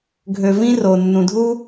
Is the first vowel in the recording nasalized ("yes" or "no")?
no